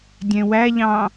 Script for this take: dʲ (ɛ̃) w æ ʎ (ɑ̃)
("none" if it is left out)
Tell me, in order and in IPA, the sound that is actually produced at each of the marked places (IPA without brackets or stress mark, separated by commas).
ɛ̃, ɑ̃